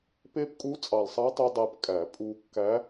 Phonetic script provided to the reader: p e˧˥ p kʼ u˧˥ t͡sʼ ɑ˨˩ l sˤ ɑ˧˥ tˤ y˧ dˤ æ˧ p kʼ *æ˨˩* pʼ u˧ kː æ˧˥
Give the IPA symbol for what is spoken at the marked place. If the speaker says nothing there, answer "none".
æ˨˩˦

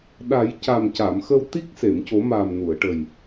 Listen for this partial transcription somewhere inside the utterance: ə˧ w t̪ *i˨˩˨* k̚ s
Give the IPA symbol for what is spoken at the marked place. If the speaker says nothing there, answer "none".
i˦˥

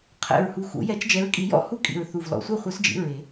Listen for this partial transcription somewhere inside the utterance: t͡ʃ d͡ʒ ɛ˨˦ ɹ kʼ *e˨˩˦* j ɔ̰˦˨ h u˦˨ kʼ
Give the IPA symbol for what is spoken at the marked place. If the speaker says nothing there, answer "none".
i˨˩˦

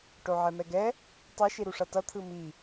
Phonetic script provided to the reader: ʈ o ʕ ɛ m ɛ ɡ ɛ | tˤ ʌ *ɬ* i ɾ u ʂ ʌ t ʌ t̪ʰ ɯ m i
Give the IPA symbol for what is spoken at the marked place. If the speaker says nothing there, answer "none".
ʃ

